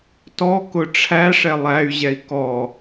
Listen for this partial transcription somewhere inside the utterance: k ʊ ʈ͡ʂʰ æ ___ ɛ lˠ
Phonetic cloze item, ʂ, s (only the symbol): ʂ